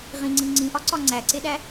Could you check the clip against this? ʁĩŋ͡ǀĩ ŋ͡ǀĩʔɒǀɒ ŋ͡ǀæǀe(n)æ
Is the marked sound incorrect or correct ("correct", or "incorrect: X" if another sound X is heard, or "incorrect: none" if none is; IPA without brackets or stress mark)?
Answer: incorrect: ɗ